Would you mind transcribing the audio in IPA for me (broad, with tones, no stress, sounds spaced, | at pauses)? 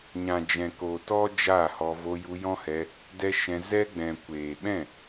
ɲ ã˨ d͡ʒ ɛ̃˨ k o˨ t ɔ˦ d͡ʒ a˦˨ h ɔ˧ v o˧ j u˧ j ɔ̃˦ h ɛ˧ | d ɛ˦ ʃ ɛ̃˧ z ɛ˦ ɡ͡b ɛ̃˨ kʷ eː˨ ɓ ɛ̃˦˨